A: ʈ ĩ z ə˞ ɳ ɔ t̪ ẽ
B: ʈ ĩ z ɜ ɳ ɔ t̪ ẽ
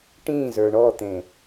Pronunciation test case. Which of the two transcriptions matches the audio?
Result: A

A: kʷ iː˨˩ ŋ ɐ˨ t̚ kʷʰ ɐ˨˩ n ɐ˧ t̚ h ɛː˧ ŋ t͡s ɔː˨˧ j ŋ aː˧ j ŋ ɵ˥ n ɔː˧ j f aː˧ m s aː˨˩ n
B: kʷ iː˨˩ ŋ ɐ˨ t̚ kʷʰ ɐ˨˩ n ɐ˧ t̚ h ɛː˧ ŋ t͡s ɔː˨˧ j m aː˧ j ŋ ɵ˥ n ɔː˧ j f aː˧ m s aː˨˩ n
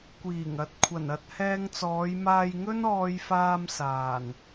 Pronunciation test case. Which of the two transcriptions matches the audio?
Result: B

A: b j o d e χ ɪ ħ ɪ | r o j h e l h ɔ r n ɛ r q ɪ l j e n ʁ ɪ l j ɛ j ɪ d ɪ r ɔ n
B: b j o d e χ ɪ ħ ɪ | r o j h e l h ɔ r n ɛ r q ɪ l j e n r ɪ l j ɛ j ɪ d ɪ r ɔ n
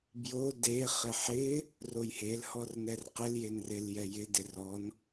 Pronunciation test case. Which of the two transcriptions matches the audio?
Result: B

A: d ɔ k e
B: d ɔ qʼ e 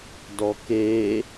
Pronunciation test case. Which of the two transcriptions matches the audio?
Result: A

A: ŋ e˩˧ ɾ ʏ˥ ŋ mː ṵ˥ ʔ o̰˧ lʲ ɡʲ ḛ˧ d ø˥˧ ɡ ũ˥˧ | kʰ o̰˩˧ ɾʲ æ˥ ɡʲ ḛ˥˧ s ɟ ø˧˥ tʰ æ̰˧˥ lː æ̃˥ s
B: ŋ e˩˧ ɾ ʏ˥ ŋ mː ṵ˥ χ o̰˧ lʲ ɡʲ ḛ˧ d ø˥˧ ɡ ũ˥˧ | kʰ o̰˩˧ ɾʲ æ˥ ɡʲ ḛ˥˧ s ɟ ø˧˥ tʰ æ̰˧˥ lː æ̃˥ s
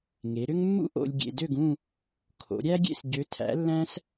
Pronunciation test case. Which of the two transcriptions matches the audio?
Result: A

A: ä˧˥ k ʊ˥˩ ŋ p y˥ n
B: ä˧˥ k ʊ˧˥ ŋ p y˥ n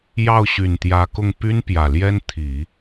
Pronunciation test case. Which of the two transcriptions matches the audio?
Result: A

